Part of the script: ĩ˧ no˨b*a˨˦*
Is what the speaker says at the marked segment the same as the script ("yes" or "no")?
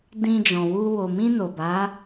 yes